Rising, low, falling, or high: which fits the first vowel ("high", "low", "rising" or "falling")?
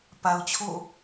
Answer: low